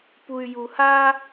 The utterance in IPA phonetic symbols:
p u y̯ j u h a

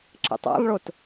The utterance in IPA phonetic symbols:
ǁ ə̰ tˤ a̰ lˠ ɭ o t

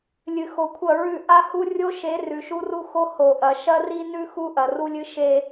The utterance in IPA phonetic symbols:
lʲ ɨ˨ x o˨ kʷʰ ɐ˦˨ ɹ ʉ˦˨ ʔ a˦ h u˦ rʲ o˦ ʃ e˨˦ r ʉ˨ ʃ u˦ r u˦ x o˦ h o˨ ʔ ɐ˨ ʃ ɐ˦ r i˦ n ʉ˦ x u˦ ʔ ɐ˨ r u˦ lʲ ɨ˦ ʃ e˦

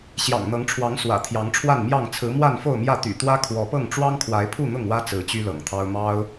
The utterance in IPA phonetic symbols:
ɕ j ɑ̰˨˩ ŋ n̪ ɤ˨˦ ŋ ʈ͡ʂʰ w ɑ˨˦ ŋ s w ä̰˨˩ t̪ʰ j ɑ˨˦ ŋ ʈ͡ʂʰ w a˥˨ n m j ɑ˥˨ ŋ t͡sʰ ɹ̩˨˦ m w a˥˨ n f o˥˨ ʊ̯ m j ä˥˨ t̪ y̰˨˩ t̪ w ä˦ kʰ w ɔ˨˦ p ɤ˥˨ ŋ ʈ͡ʂ w ɑ˦ ŋ kʰ w a˨˦ ɪ̯ pʰ u˥˨ n̪ ʊ˥˨ ŋ w ä˦ t͡s ɹ̩˨˦ t͡ɕ y˦ l ɤ̰˨˩ ŋ t̪ʰ ɑ˦ ʊ̯ m ɑ˦ ʊ̯

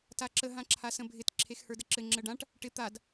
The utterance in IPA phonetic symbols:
t a ǁ ə ɦ ã ǁʰ a s ə̃ bʱ ɪ t ǁʰ e x h ə˞ d ə ǁ ɘ ŋ͡ǁ ə ɖ ã ʈ | ʈ ɪ t̪ a d

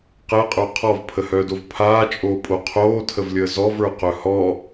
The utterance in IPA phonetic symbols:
q ɛ qʼ ə˞ qʰ ɔ v pʰ ə h œː d o v pʰ aː t͡ʃʼ oː pʼ o qʰ oː tʰ ə v lʲ əː z ɔ v ə˞ q œ h ɔ

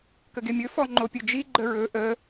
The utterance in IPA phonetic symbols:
k ə ɡ e mʲ ɵ f ɔ ŋ͡ǃ o pʲ ɵ d͡ʒ i ɡ͡ǃ ə ɹ ɵ ʔ ə

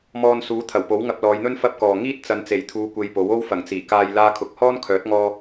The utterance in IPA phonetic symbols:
m ɔː˧ n s uː˨˥ t̪ʰ ɐ˨˩ w p o˨˥ w ŋ ɐ˧ p̚ l ɔː˨˧ j n̪ ɵ˥ n f ɐ˥ p̚ k ɔː˨ ŋ iː˥ t̚ t͡s ɐ˨˧ n t͡s e˨˩ j t̪ʰ uː˨˧ kʷ e˧ j p o˨˥ w o˥ w f ɐ˨˩ ŋ t͡s iː˨˩ k aː˧ j l aː˥ kʰ ʊ˧ k̚ h ɔː˥ n kʰ œː˨˥ t̚ ŋ ɔː˧

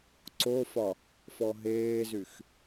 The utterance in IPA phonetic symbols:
ǀ o f ɒ | f ɔ ɦ eː z y x

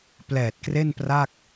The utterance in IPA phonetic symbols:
p l ɛː˨˩ t̚ k r e˥˩ n p r a˥˩ k̚

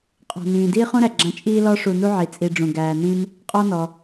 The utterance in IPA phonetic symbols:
qʼ ɔ̤˩ n ĩː˩ d iː˦ χ ũ˦ ɾ æ˩ ɡ͡ǁ ã˨ t͡ʃʼ iː˦ l ɔ˦ ʂ u˨ n u˥ ʕ i˩ t͡sʼ i˨ ɖ͡ʐ ũ˩ ɡ æː˨ n ĩ˥ m | qʼ ɔ˦ n ɔ˩

